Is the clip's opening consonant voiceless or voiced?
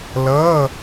voiced